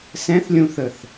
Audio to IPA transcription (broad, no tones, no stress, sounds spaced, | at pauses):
s ɛ̃ θ lʲ ũ θ ə θ